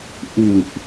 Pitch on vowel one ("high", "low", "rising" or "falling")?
low